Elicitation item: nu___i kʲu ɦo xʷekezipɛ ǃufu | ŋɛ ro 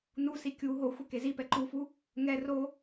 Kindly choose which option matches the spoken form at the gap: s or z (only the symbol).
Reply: s